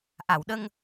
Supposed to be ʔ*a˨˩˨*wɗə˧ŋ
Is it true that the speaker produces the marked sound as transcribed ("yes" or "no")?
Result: yes